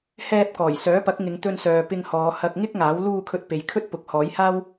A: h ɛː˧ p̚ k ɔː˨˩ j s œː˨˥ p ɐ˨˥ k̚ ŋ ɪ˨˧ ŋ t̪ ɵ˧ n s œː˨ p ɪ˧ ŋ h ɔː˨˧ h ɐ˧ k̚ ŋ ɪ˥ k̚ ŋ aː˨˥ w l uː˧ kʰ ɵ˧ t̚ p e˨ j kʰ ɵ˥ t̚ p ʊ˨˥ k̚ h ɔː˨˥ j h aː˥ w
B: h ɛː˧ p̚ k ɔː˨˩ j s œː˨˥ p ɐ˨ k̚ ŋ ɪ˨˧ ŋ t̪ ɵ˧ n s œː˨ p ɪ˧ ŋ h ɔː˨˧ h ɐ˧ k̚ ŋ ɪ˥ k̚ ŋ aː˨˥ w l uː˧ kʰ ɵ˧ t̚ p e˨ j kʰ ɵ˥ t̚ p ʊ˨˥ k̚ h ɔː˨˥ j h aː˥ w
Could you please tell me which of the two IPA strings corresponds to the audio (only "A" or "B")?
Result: A